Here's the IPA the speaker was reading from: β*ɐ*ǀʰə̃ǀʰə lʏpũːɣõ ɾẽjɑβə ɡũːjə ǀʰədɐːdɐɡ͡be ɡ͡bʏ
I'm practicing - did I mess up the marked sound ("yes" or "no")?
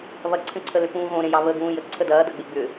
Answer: no